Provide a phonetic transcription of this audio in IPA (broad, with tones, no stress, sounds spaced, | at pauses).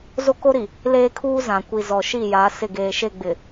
z o˦ k o˦ ɾ i˨ | l eː˦ kʰ uː˦ z ã˨ kʷ i˨ z ɔ˨ ʃ i˦˨ j a˨˦ s ɪ˦˨ ɡ eː˨ ʃ e˦˨ ɡ͡b ɪ˨